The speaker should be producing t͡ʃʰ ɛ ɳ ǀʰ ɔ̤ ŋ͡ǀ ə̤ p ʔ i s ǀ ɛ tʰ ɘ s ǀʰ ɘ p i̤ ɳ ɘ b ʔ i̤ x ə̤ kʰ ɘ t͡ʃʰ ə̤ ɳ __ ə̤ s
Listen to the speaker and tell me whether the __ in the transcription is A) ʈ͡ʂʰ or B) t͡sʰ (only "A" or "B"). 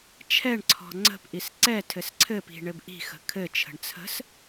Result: B